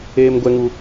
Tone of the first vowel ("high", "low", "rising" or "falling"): high